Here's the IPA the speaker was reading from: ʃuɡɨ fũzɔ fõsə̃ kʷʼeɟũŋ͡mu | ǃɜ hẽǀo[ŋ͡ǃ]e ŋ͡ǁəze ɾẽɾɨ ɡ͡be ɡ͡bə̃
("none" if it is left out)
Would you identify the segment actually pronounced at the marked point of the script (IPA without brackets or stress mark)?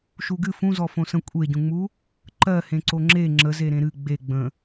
ŋ͡ǁ